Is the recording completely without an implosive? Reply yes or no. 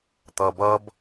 yes